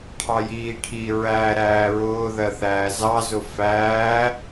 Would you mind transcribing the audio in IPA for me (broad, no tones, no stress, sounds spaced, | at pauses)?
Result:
ʈʰ ɑ j iː ʈʰ i ɹ æː ɾ æː ɹ ʊː ð ɜ θ æː z ɑ z ʊ f æː